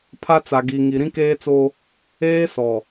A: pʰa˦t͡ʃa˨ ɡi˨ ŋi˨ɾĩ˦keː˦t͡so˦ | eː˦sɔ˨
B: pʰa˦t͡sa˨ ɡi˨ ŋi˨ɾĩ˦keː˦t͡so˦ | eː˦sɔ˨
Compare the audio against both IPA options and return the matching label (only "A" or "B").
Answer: B